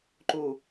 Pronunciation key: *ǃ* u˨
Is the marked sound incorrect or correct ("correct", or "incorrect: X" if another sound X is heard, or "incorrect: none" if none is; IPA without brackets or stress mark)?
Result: correct